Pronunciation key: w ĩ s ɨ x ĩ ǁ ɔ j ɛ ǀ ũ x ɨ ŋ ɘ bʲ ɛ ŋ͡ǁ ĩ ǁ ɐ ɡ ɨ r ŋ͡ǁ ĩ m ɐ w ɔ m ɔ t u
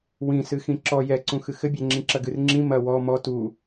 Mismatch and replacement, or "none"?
ŋ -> x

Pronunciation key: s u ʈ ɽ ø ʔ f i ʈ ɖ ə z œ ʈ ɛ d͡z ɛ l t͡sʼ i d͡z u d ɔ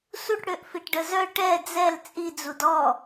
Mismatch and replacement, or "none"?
none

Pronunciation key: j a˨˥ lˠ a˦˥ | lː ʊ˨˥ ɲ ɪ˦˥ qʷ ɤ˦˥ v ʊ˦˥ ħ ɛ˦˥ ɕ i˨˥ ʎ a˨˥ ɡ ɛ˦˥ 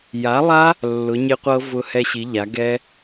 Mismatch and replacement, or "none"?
ħ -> h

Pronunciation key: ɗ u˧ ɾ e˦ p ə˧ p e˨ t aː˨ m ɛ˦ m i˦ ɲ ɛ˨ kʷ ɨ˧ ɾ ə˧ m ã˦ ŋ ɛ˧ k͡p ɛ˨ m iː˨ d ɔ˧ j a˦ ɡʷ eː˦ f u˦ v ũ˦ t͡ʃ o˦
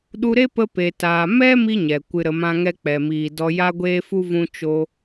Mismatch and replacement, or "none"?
none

